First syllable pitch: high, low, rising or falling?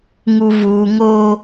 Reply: low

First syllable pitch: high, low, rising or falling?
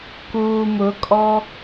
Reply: low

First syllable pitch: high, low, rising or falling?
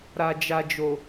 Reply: low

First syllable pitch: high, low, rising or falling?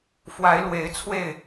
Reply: rising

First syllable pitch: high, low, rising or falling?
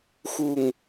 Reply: low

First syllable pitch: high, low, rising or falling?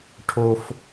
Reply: high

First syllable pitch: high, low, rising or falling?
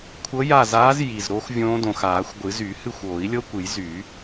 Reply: rising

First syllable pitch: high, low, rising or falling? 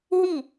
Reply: falling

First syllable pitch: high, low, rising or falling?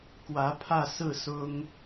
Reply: rising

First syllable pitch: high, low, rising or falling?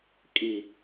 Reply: low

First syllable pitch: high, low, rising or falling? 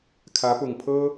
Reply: rising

